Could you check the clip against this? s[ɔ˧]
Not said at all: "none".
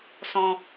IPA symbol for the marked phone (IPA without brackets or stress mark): ɔ̃˧